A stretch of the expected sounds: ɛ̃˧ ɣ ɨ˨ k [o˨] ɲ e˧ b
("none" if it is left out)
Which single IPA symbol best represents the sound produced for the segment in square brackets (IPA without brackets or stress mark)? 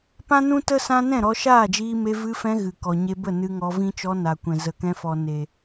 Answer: ɔ˨